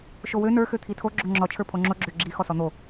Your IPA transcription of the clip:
ʃowø nə˞ xøt̪ʰitʰo ɡ͡ǁoŋ͡ǁɔ t͡ʃʰə˞pʰoŋ͡ǁo ɡ͡ǁøɡ͡ǁi xɔsɔn̪o

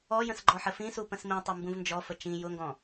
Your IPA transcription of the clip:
ɔjə̃s ɡ͡ǃɔħəfĩsu pə̃smĩtˤu mbũvnd͡ʒɔfə t͡ʃĩ jʊŋɡɔ̃

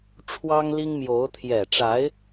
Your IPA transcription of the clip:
ʈ͡ʂʰwɑ˥ŋli˥ŋmjo˧˥ʊ̯ t̪ʰjɛ˨˩ʈ͡ʂa˧˥ɪ̯

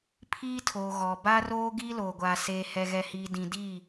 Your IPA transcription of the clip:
pʰiː˦tʰoː˨ ɣɔ˨ ba˦roː˦ ɡiː˦loː˨ɡʷaː˨ seː˨hɛ˨ɣɛ˨hiː˨ dĩ˨di˦˨

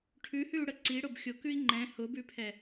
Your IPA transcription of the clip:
ʈʰʉhʉu̯ɽə ǀiɽʊb xʲʊkʉi̯ ŋ͡ǃɛ̃ hʊbʉpʰɛ

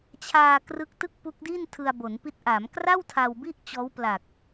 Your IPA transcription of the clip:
t͡ɕʰaː˧ krɯ˦˥k̚tɯ˥˩k̚pu˦˥k̚di˥˩n tʰɯ˧a̯bo˩˦npi˦˥t̚ ʔaː˩˦m kra˥˩w tʰa˧wbi˥˩ʔt͡ɕɔː˦˥w pla˨˩k̚

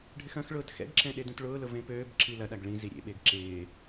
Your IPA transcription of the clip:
ɖʱɪxɐ̃xɭʊːt xɛ̰ɡǁɛ̃ ɗedũtɭʊːlʊ vẽpøːbǁi lɐɗaɡ ɭĩzi ɾʲḛɓeɡ ǁɪː

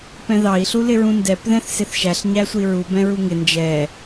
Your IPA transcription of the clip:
pɛ̃ðɑi̯ɬu lɪɹũndɛp ðɛ̃θsɪθʃæɬɲæ sʷiɹu bɛ̃ɹuŋɪ nd͡ʒɛ

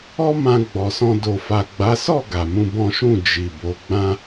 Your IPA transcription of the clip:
ɔ˦mã˧ ɡ͡bɔ˨sɔ̃˧ do˨fa˨ ɡ͡ba˨˦sɔ˦˨ ɡa˨mũ˧bɔ̃˦ʃũ˦˨ d͡ʒi˨bo˨˦ ɡ͡bã˧

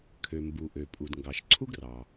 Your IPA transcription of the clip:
kʰø˩mbu˩ʔø˩ pʼu˩dŋɡɑ˩ʃǀʰu˥ɡrɑ˩

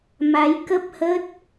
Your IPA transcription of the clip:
ma˨˦jkə˦˥p̚hə˦˥t̚

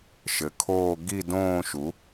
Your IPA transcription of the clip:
ʃɘ˩˥kʰoː˥˧ ɡi˥˧ dõː˥˧ʃu˩˥

